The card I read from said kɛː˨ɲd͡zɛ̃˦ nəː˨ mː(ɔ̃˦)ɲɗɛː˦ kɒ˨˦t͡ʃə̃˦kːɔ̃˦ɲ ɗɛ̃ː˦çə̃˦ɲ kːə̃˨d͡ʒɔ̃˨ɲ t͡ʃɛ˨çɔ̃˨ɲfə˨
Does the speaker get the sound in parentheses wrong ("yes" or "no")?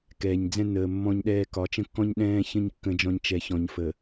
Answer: no